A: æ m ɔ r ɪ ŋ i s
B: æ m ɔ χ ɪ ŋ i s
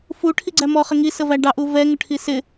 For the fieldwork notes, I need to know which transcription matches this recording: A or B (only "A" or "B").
B